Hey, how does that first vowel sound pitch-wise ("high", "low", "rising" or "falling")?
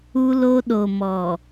high